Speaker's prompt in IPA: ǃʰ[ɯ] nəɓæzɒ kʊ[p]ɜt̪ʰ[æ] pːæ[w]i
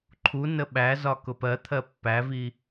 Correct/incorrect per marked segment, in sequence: incorrect: u, correct, incorrect: ɜ, incorrect: v

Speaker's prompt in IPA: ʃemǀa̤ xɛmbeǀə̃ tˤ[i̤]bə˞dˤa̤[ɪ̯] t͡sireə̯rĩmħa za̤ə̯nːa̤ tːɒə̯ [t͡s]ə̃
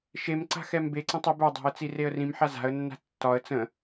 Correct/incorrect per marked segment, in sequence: incorrect: i, incorrect: ə̯, correct

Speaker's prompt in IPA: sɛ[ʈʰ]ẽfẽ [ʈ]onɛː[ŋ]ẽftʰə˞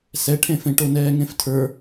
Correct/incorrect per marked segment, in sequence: correct, correct, correct

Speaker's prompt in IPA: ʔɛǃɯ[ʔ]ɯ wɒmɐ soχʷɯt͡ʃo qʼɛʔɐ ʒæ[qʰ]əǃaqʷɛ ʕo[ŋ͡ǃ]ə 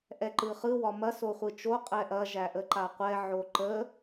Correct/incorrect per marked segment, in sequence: incorrect: χ, incorrect: ʔ, incorrect: ǃ

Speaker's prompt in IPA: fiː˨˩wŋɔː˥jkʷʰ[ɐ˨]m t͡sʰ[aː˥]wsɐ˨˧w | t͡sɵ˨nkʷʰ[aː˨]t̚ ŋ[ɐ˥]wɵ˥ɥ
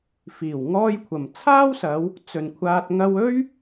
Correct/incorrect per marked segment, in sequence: correct, correct, incorrect: aː˧, incorrect: ɐ˧

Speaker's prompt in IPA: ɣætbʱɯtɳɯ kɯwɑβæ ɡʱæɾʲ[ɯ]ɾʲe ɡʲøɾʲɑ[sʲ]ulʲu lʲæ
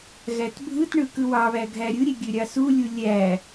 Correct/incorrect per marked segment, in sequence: correct, incorrect: s

